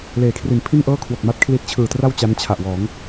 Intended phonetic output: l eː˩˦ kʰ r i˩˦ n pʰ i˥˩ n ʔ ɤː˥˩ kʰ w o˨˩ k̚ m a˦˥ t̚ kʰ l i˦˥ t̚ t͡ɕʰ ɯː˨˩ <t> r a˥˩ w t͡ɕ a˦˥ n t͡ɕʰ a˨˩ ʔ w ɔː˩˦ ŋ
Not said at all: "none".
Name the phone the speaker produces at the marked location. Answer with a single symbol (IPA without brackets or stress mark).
t